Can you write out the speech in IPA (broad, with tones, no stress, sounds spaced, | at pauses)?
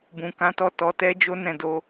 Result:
b ũ˨ k ã˨˦ t ɔ˦˨ t ɔ˨˦ t ɛ˦ d͡ʒ o˦ n ɛ̃˦˨ d o˧